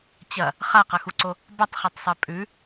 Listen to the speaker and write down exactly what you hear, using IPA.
t͡ɕ ɐ | χ a q ɐ x u ǀ o | b a tˤ χ e tˤ sˤ e pʼ ʉ

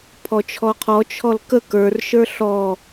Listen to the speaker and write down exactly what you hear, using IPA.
pʰ ɔ t͡ʃʰ ɔ qʰ ɔ t͡ʃʰ ɔ l k ə k ə˞ r ʃ ə˞ ɬ ɔ

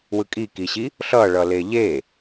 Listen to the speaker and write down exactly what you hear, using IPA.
w ɯ kʼ i k i ɕ i | ɬ ʌ ɭ ʌ l e ʎ e

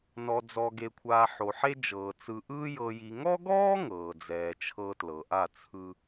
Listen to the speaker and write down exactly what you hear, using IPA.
n ɔ˨ d͡z ɔ˨ ɡ e˨ kʷʰ aː˨ ħ o˨ ħ e˦ d͡ʒ ɤː˨ t͡s ɯ˨ ʔ ɯː˦ j ɤ˨ j i˨ ŋ ɔ˦ ɡ ɔː˦ ŋ ɤː˨ d͡z ɛː˨ t͡ʃʰ ɤ˦ t l ɤ˨ ʔ a˦˨ t͡sʰ ɯ˦

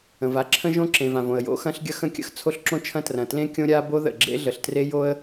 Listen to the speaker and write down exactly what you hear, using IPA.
ə̃˩ v a˥ ǁʰ ə̃˥ ʒ õ˥ ǁ ẽ˩ v ã˩ v õ˩ ə̯ j o̰˥ x ɐ̃˥ ɬ ɡʲ ɐ˥ x ə̃˥ kʲ ə̰˥ x t͡sʰ o˥ ɬ ǁ õ˥ t͡ʃʰ ɐ̃˥ t r ɐ̃˩ t l ẽ˥ kʲ õ˥ ɾʲ a˥ b o˥ ð ə̰˩ ɡ͡ǁ ḛ˥ ɮ ə˩ ɬ t r e˥ j o˥ ə̯

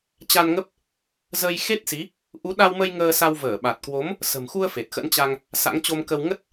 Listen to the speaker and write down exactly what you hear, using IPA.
t͡ɕ a˧ n ŋ ə˦˥ p̚ | z ə˧ j x e˦˥ t̚ s i˨˦ | ʔ u˨˦ ɗ a˧ w m ə˧ j ŋ əː˧ s a˧ w v əː˧˩ ɓ a˨˩ t̚ k w o˨˦ m | s ə̤˨˩ m x u˧ ə̯ f e˨˩ t̚ x ə̰˧˥ n t͡ɕ a˧ ŋ | s a̰˧˥ ŋ t͡ɕ o˧ m k ə˧ w ŋ ə˦˥ t̚

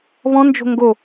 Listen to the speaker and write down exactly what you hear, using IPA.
β ɔ̃ n d͡ʒ o̤ ŋ ɡ o

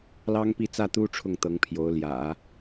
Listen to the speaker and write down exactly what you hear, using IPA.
l ɑ˥ ŋ p i˥˧ t͡s ä˥˩ t̪ u˥ ʈ͡ʂʰ ʊ˥˩ ŋ t̪ ɤ˧˥ ŋ pʰ j o˧˥ ʊ̯ l j ä̰˨˩˦

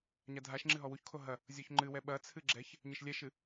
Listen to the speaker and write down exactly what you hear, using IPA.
ɲ a dʱ a ʃ ŋ͡ǁ ɨ ɦ ɔ w u ç kʰ o ɦ ɐ | zʲ ɔ ç ŋ͡ǃ ɨ w ɛ ɓ ɐ t͡sʰ ɨ ɡ͡ǁ ɛ ç | ɲ ɘ ʃ lʲ ɛ ʃ ɨ

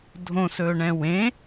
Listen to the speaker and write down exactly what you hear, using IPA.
dʱ õ s ɵː ɳ ɛ̃ w ẽ

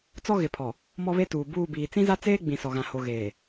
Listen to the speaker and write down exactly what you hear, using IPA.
t͡s ɔ˦ ɣ ɪ˨ pʰ ɔ˨ | m ɔ˦ β e˦ t uː˨ b uː˦˨ b iː˨ t͡s ĩ˦ z a˦ t͡s eː˦ ɡ͡b ĩ˨ s ɔ˨ ɣ ã˨ h o˨ ɣ eː˨

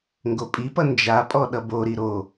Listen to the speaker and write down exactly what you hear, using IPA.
ŋ ɡ o pʼ i p ʌ n d͡ʒ a pʼ ɔ ɗ ʌ b o ɾ i ɾ o

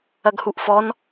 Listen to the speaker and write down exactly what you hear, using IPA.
ɐ ɡ h u ʔ f ɔ n

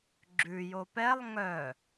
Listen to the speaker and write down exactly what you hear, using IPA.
ɡ͡ǁ ʉ j o p ɛ lˠ ŋ œ

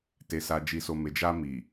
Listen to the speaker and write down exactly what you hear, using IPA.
t e˨ s a˨ d͡ʒ i˨ s o˨ m e˨ d͡ʒ a˧ m i˨

